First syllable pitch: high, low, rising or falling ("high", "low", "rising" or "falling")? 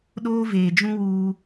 high